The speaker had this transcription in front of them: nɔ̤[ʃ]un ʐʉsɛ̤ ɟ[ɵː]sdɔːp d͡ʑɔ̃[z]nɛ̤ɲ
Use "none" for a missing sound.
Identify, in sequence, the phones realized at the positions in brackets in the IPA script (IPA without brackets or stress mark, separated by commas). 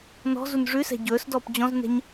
z, ɵː, z